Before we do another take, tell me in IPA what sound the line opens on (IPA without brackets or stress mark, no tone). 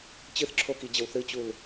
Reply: t͡ɕ